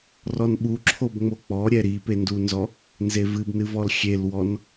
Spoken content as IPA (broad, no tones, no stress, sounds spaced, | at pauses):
r ɔ n ɓ u ǁʰ o b ŋ͡m o k͡p ɔ ɾʲ ɛ ɾ i p e n d u n z ɔ | n z e v ɨ b n ɨ v ɔ l xʲ e l w ɔ n